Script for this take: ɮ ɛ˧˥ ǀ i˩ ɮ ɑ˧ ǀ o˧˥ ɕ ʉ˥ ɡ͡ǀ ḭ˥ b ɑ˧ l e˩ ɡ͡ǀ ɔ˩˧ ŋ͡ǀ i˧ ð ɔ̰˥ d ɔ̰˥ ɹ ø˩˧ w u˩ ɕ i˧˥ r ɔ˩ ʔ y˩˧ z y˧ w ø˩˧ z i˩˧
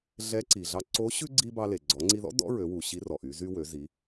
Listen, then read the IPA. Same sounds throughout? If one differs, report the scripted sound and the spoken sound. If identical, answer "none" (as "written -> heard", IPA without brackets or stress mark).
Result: ḭ˥ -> i˥